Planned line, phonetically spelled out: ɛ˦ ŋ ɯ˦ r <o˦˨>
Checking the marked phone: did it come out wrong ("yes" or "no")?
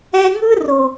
yes